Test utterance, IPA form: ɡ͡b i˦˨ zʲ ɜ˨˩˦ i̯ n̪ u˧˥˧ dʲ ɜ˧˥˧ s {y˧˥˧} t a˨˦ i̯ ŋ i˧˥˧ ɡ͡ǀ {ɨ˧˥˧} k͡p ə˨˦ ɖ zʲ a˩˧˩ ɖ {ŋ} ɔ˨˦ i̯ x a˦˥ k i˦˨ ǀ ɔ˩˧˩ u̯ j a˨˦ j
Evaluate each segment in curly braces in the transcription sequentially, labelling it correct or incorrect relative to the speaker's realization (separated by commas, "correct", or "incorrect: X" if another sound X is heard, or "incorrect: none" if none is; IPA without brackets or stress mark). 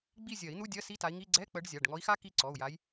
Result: incorrect: i˧˥˧, incorrect: ɛ˧˥˧, correct